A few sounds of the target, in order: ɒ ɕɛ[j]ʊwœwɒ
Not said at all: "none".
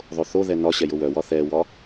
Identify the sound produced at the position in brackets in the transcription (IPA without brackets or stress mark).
j